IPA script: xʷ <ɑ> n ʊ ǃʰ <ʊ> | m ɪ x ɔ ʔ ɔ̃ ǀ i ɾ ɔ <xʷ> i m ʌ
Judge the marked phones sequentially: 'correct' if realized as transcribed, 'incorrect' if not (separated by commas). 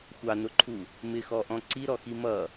correct, incorrect, incorrect